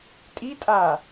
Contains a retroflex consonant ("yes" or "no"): no